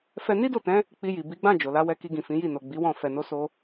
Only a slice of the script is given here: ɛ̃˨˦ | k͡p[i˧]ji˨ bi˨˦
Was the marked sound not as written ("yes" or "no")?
no